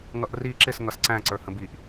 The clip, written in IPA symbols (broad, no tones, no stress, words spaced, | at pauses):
ŋʌʔri ǁɪs ŋʌsǀæ̃ ǀə˞hə̃biʔ